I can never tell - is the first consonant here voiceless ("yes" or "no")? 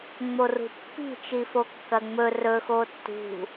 no